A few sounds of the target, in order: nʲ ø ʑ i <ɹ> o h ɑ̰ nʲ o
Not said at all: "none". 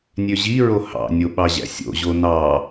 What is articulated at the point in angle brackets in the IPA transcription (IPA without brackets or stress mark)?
ɹ